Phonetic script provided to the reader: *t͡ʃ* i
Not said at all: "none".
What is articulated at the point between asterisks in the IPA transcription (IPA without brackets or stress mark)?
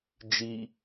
d͡ʒ